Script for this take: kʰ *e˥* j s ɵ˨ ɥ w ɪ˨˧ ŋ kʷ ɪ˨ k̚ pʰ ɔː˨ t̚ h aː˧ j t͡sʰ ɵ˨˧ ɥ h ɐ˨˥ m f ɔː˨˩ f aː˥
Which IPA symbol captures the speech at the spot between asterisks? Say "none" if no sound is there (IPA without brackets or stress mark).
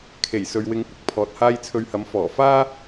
e˨˩